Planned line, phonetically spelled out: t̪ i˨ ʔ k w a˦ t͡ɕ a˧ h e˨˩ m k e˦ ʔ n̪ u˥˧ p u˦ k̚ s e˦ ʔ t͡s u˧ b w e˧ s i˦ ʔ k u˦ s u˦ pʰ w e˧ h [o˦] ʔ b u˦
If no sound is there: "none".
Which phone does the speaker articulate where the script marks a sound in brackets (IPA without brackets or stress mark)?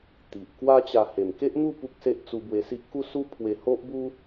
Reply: o˦